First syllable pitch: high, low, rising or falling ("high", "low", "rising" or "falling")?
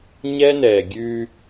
high